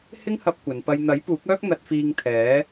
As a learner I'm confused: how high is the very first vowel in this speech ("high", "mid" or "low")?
high